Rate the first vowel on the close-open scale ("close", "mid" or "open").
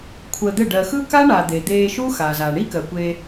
mid